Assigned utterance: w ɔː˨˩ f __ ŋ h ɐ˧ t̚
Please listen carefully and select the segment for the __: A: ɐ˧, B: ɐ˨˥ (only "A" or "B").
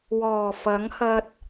B